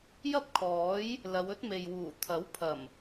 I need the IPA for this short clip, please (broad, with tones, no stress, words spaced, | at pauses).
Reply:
jɐ˥p̚kʰɔː˨˥j | lɐ˨˧wɵ˥t̚me˨jwuː˨˩ t̪ʰɐ˨˥wpʰɐ˨˩m